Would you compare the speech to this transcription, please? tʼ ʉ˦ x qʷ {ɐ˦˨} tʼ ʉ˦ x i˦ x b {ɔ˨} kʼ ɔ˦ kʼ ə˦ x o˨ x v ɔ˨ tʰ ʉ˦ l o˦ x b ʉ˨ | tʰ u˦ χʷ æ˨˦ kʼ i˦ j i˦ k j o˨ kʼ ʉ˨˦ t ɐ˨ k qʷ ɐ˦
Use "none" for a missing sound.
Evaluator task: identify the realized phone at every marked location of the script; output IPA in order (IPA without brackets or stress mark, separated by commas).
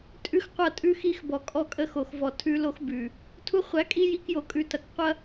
ɐ˦˨, ɔ˨